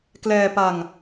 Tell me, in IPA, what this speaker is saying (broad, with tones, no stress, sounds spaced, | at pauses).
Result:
k l ɛː˧ p a˧ ŋ